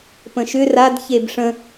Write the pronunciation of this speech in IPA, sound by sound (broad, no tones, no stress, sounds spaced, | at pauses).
p ə̃ ʃ ʏ r a d ç e b ʂ ə̃